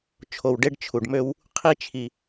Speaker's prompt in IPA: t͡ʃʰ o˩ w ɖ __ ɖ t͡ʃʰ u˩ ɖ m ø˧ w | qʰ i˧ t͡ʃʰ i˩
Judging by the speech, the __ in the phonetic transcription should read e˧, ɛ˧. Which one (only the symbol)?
e˧